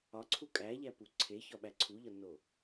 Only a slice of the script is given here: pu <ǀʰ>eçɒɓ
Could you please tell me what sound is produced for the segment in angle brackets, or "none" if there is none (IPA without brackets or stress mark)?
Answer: ǀʰ